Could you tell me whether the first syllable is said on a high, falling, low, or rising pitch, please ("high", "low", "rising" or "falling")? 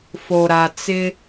low